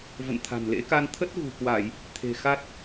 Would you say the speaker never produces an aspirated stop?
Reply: no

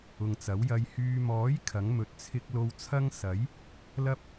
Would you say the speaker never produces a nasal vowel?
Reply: yes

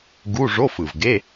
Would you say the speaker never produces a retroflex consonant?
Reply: no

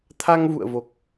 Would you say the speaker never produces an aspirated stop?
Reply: no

